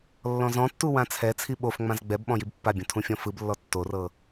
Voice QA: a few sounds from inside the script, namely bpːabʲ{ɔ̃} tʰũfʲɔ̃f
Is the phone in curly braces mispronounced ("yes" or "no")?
yes